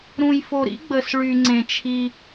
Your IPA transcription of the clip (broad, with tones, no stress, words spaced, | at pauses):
ɾũ˨jfo˨ɾḭ˦ɡ͡bə˨s ɭy˨ŋ͡ǀẽ˨ t͡ʃʰi˦